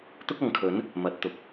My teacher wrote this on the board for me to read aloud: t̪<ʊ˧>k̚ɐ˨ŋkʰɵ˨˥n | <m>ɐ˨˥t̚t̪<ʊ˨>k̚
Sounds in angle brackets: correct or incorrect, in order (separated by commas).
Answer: incorrect, correct, correct